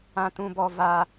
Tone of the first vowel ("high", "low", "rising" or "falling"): high